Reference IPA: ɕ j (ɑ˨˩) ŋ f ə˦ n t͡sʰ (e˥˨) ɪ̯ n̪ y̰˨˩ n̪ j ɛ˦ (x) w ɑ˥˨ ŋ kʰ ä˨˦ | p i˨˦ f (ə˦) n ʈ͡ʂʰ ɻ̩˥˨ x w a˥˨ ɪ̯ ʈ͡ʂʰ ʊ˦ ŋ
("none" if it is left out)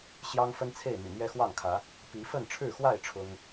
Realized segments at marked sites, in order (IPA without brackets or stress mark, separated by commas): ɑ˦, e˥˨, x, ə˥˨